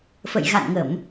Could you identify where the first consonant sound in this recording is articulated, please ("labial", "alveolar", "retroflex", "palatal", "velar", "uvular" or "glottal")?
labial